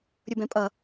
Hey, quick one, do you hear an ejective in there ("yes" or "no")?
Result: yes